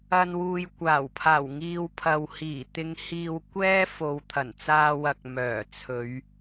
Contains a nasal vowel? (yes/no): no